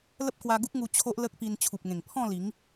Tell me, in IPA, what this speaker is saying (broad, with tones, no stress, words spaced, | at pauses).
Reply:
lə˦p̚kwa˧ɡu˦k̚ŋu˧ t͡ɕʰo˦ʔlə˦k̚pi˧n t͡ɕʰu˨p̚ŋẽ˨˩ŋpʰɔ̃˥˧li˨˦ŋ